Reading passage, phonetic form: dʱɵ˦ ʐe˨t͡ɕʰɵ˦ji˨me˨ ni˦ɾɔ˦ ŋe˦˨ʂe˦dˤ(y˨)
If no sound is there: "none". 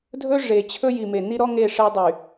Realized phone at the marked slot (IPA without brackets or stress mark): y˨